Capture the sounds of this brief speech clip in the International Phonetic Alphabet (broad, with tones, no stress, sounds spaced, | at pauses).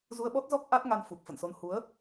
z u˧ ə̯ ɓ ɔ˦˥ t̚ z ɔ˦˥ k̚ ʔ a˦˥ t̚ ŋ a˧ n f u˨˩ k̚ f ə̰˧˨ n s o˧ n h u˨˦ ə̯